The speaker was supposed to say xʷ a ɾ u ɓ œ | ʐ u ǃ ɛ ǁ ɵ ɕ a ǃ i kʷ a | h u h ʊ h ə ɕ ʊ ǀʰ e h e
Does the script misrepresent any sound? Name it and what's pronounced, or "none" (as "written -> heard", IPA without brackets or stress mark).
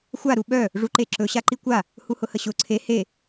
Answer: ɛ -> e